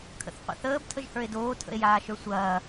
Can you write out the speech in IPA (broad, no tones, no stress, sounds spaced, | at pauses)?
kʰ ə̰ θ qʷ ə̰ θ əː b tʰ ə ʒ h ə˞ e̯ d oː tʰ ə̰ e̯ j aː ʃ ə˞ sʷ ɐː